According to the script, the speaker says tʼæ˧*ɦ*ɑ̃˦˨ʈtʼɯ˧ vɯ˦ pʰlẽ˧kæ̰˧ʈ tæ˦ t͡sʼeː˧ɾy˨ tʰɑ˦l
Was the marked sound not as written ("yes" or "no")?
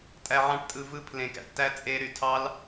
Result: yes